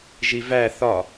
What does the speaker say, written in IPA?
ʒivæ θɒ

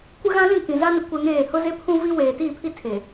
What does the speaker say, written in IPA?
kʷɪ˦ɣã˦lĩ˦˨ kĩ˨za˦nɪ˨ kʷɛ˦ŋeː˦˨ hʊ˦ze˦pʰũ˦ vi˦ weː˨tiː˦˨pʰi˦ tʰe˨

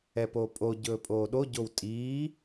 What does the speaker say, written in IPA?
ɛpoːpʼo ɟɵːpʼoːɗo ɟowtʼiː

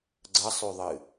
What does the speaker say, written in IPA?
ɡ͡ǀɐsˤʉðˤɨ

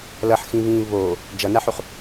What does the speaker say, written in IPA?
lʌħxĩβĩː βo | d͡ʒʌnaħuχ

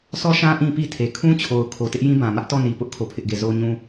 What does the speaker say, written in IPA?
sʰɔ˦ʃã˦ ʔĩ˦pi˦ tʰe˨ kʰũ˦t͡ɕʰo˨ʊ̯ kʰo˨tɪ˦ʔ jĩ˦bã˨mä˦ʔ tɔ˦˨ni˨pʊ˦ʔ kʰo˦˨pʰɪ˦ʔɡe˦˨ zo˦ɲũ˦

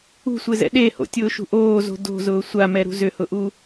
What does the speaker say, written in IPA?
ṳsʷezɛ̰ ɗeho̰tʲʊːʃṳ ʔoːzo̤ do̤zʊː sʷamɛɾṳ zʏhʊʔu

